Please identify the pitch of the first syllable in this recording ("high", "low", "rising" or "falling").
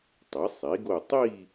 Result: rising